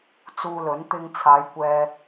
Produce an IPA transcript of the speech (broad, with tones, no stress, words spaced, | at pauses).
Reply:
t͡suː˧lɵ˨˥n t̪ɪ˧ŋt͡sʰaː˨˧j kʷɛː˨